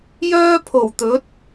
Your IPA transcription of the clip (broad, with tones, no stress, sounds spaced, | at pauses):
j œː˥ pʰ o˨˩ w t̪ ɵ˨˥ t̚